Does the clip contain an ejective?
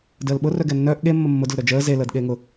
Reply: no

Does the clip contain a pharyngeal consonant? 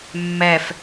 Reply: no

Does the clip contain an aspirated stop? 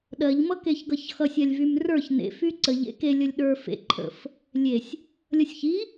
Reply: yes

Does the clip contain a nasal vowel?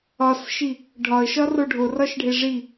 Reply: no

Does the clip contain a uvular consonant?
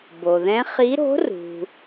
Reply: yes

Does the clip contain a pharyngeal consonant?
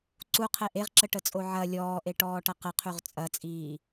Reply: yes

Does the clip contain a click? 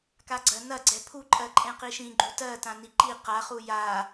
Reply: yes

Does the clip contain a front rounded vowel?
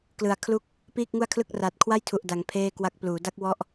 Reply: no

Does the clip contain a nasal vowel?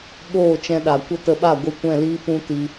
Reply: yes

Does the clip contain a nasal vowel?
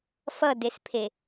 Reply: no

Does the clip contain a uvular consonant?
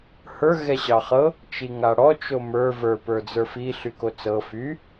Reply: yes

